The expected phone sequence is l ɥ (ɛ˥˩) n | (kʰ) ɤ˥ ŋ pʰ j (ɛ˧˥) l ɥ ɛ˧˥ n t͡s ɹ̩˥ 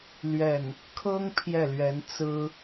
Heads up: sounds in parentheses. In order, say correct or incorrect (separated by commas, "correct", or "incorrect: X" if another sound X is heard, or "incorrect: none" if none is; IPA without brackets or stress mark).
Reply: correct, correct, incorrect: ɛ˥˩